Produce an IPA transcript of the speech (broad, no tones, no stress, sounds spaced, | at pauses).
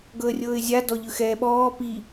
ɡ ɤ ə̯ rʲ ɤː ɪ̯ zʲ a d ɔ ʎ ɯ x ɛː ɓ ɔː p i